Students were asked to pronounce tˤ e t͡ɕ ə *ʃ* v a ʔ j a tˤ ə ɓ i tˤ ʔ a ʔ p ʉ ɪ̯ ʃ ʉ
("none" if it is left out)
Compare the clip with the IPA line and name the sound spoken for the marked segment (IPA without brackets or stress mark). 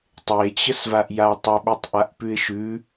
s